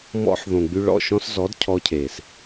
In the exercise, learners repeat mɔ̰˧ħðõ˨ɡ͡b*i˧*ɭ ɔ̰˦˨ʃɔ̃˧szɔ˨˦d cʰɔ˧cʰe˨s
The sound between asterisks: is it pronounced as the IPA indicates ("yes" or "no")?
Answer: no